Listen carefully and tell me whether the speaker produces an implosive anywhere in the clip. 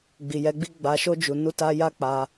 no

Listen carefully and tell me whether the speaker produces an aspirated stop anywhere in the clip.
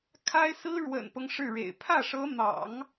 yes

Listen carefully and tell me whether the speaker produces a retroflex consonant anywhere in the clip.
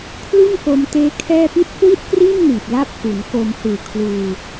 no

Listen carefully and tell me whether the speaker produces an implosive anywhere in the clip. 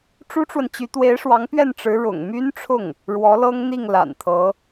no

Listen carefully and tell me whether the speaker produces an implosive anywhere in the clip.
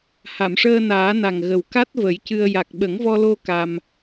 yes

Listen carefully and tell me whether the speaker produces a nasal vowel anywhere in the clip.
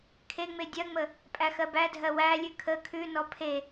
no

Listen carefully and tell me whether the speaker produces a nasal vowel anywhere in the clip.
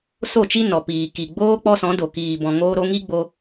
yes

